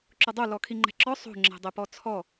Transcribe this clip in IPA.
ǁ ʊ dˤ o l ɔ kʰ i ŋ͡ǃ ɛ̤ ǁ ɔ sˤ o̤ ŋ͡ǁ ɛ̤ dˤ e p ɔ t͡sʰ ɔ

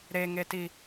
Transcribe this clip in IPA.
ɾ e ŋ e t i

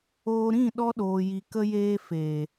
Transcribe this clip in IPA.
oː˧ ɾ ĩ˦˨ ɗ ɔ˧ ɗ oː˨ j i˨ k ə˧ j eː˧ f e˨

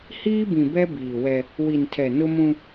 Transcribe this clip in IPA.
h iː˦ b ĩ˨ b ɛ˦ b iː˨ w ɛ˦ | w i˨ n tʰ ɛ˨ n ʊ˦ m ũ˦

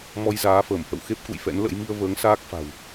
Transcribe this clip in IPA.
m ɔ˧ j z aː˨˦ f əː˧˩ m h ə̰˧˨ w x e˦˥ p̚ k ṵ˧˨ j f ɛ̰˧˥ n l ə̰˧˥ j m i˧ ə̯ v əː˨˦ ŋ s aː˦˥ k̚ f a̤˨˩ w

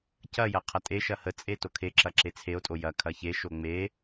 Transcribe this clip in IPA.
c ɐ j ɐ qʰ ɐ tʼ e ʃ ɐ h ə t͡sʼ e t o kʰ e ǁ ɐ ǁ e t͡sʰ e o̯ tʼ o j ɐ kʰ ɐ ç e ʃ o ŋ͡m e

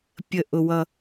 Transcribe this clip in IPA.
pʲ ə˧˩ ʔ ʊ˧ w ʌ˧

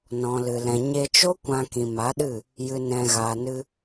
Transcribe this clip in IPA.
n ɔ̃˨ l ɨ˨ l ɛ̃˨ ɲ e˧ t͡ʃ o˦ kʷ ã˧ k ĩ˨ m a˨˦ ɗ ɨ˦˨ | j ɨ˧ n ɛ̃˧ ɣ aː˨ n ɨ˧

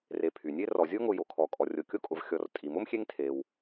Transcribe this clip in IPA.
r e˨ pʰ y˩ nʲ e˥ r ɔ˩ zʲ o˥ ŋ ʊ˨ j o˩ kʰ ɔ˩ kʼ ɔ˨ rʲ o˨ kʲ o˥ kʼ ʊ˨ v xʲ ɔ˨ r tʼ i˩ m ʊ˥ m xʲ e˦ ŋ tʰ e˩ w

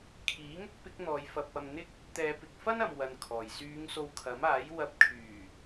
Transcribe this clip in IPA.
kʰ iː˨˥ ŋ ʊ˥ k̚ p ɪ˨˥ k̚ n̪ ɔː˨˧ j f ɐ˧ p̚ ɐ˧ m n̪ ɪ˥ k̚ | t̪ ɛː˨˧ p ɪ˨ k̚ f ɐ˥ n ɐ˨ m w ɐ˧ n kʰ ɔː˨ j s yː˨˧ ŋ s o˧ w kʰ ɐ˨˥ m aː˨˥ j w ɐ˧ p̚ kʰ yː˨˩

